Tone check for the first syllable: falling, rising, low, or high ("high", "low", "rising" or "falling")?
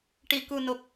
low